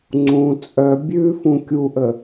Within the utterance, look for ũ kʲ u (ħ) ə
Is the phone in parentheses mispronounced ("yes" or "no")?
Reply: yes